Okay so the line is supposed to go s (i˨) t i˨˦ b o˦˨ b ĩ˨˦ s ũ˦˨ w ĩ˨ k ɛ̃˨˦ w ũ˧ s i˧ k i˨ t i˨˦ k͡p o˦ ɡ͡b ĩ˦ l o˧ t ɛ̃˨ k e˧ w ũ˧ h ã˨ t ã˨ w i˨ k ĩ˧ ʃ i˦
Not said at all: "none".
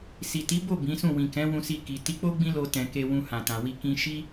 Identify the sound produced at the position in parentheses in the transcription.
i˨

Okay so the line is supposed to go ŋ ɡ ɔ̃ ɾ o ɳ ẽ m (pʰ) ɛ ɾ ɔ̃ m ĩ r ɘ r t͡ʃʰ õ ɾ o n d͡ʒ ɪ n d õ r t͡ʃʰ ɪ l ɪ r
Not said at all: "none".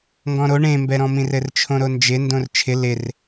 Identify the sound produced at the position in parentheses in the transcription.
b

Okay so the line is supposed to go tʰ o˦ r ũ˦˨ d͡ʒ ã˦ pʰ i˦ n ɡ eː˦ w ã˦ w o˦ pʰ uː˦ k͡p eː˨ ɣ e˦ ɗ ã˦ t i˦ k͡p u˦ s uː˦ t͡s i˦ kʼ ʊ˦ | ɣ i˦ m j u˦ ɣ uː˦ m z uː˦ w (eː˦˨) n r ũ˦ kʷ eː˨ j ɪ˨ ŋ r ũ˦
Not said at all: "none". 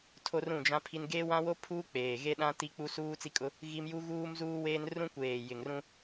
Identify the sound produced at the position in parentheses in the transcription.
eː˦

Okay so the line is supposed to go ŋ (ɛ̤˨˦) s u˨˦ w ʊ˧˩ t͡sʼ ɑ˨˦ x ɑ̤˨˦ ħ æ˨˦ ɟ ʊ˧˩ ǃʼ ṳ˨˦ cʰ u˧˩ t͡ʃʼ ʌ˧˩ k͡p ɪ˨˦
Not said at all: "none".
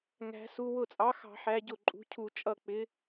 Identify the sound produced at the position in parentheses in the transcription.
æ̤˨˦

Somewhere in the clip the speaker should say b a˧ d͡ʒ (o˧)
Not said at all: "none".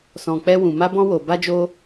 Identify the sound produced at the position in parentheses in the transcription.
o˧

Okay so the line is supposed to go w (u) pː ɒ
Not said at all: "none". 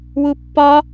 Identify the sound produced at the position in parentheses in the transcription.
u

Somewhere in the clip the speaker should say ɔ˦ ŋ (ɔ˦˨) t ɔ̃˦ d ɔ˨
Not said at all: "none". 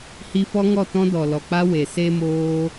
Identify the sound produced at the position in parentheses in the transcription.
ɔ˦˨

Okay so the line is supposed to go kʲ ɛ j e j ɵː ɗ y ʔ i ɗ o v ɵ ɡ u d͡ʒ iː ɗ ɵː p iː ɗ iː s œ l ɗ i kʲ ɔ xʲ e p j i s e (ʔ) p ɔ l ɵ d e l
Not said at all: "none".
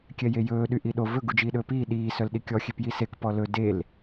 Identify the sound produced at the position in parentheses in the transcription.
k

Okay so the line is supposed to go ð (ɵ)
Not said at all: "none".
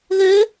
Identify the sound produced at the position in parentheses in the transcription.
ø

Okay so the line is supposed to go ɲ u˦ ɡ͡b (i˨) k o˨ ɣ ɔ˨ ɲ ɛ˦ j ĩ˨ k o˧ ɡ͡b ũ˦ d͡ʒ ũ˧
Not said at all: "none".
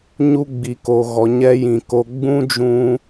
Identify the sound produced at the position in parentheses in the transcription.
i˨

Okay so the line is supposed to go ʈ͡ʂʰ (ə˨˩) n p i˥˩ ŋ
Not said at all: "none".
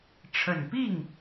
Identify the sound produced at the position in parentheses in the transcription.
ə˨˩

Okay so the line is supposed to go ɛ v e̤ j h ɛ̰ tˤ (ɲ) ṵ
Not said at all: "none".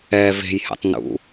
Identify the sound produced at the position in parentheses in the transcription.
n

